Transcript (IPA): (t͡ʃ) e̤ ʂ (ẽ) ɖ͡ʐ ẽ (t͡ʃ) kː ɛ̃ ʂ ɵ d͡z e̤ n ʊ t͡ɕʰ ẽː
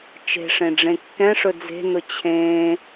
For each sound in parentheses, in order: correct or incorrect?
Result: correct, correct, incorrect: none

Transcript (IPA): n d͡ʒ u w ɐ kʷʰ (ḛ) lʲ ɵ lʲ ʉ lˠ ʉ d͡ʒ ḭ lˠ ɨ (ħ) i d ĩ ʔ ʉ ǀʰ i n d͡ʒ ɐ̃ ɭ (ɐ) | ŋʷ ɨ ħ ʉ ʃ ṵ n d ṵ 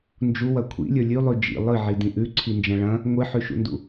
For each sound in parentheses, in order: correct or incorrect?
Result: incorrect: ḭ, incorrect: ʕ, incorrect: ɐ̃

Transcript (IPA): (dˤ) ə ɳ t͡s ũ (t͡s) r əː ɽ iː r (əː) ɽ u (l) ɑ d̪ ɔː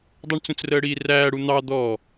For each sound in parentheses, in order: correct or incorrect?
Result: correct, correct, incorrect: æː, incorrect: n̪

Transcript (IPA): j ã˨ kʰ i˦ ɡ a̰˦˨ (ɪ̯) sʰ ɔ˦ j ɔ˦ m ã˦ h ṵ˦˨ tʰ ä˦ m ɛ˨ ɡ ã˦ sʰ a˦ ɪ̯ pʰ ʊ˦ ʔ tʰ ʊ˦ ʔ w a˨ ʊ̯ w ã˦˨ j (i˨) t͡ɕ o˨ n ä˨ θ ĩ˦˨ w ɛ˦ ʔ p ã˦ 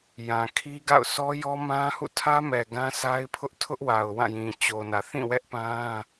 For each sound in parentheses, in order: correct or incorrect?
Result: incorrect: ʊ̯, incorrect: ĩ˨

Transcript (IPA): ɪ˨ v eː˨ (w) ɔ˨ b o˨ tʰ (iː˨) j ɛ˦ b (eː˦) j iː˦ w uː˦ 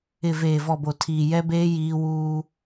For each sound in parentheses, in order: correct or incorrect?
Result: incorrect: v, correct, correct

